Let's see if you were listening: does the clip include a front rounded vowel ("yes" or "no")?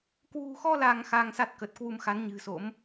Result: no